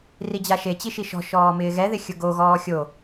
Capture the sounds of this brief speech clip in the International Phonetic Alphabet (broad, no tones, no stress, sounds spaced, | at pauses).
r i d͡ʑ a ʃ e t͡ɕ i ʃ i ʃ ɔ̤ ʃ ɔː m ɪː ɣ ɛ ð ɪ xʲ ʊ ɡ o ɣ ɔː xʲ o